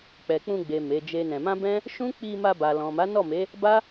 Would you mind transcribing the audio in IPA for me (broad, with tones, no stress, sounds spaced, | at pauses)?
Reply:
k͡p ɛ˨ k͡p ũ˧ ɡ͡b e˨ m e˨˦ d͡ʒ e˦ n ɛ̃˧ m ã˦ b ɛ̃˦ | ʃ ũ˦ k͡p i˧ m a˧ b a˨ l ɔ̃˨ m a˨˦ n ɔ˦˨ m e˨˦ | b a˦